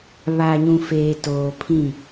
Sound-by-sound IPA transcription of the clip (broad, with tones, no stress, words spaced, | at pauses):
βa˨ɲũ˨ feː˨ toː˨pʰĩ˦˨